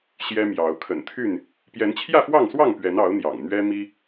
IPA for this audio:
ɕ j ɛ˦ m j ɑ˨˦ ʊ̯ kʰ ə̰˨˩ n t̪ʰ y˥˨ n | p j ɛ˨˦ n t͡ɕʰ j ä˥˨ f w ɑ˥˨ ŋ s w ɑ˥˨ ŋ p ɥ ɛ˨˦ n ɑ˨˦ ʊ̯ n̪ j ɑ̰˨˩ ŋ n̪ ɥ ɛ˦ m i˦

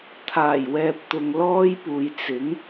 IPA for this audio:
t̪ʰ aː˨˩ j w ɛː˨ p̚ t̪ ʊ˨ ŋ l ɔː˥ j p uː˨ j t͡s ɪ˨˥ ŋ

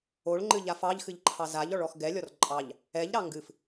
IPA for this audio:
o ɭ ŋ͡ǃ ɨ ʎ a f ɑ ʎ x ɨ ʎ ǃʰ ɑ z a ʎ ɔ ɭ ɔ x ɡ ɛ lʲ ɔ r ǃʼ ɑ ʎ | ɛ ʎ ɾ ɑ ŋ ɡ ɨ f

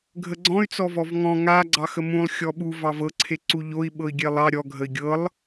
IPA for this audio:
ɡʱ ə ɡ͡ǀ ɔ̃ y̯ t͡s ɔ v ɔ v ŋ ɔ̃ ŋ a ɡ͡ǀ ɑ x ə m ũ lˠ xʲ ɔ ɓ u v ɑ v ɤ ǀʰ e ǀ u ʎ o i̯ ɓ ɤ i̯ ɡʲ e lˠ ɑ ɾʲ ɔ ɡʱ ə i̯ ɡʲ ɤ lˠ

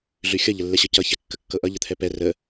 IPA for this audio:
ɮ ʉ xʲ ʌ ʎ ə lː ɛ ɕ ɤ c ʌ ç ɛ kː ə kː ɤ ʔ ʌ ʎ ə t̪ʰ ɛ p ɛ r ə

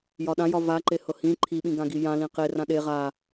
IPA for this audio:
j ɒ ɗ ã j ɒ v a ǃ e h ɤ h ĩ ǃʰ i ɓ ĩ ɡ ã ɡ i j ã l ĩ q e r ã ɗ e ʁ a

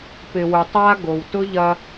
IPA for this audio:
p ɪ˨ w ʊ˨ tˤ a˦ ɡ o˨ w t ʊ˦ ʎ ɐ˧

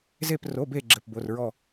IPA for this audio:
z e˧˩ p r o˩˧˩ b e˧˩ ɡ͡ǁ ɘ˩˧˩ p b o˩˧˩ r ɹ ɔ˧˩

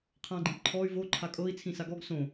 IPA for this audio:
qʰ ã ɡ͡ǃ ĩ p ǃʰ ɔ y̯ v o ǃʰ a kʼ ɤ i̯ t͡sʰ ĩ s a ɡ ɔ ɡ s õ

